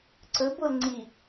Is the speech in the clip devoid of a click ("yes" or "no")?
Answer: no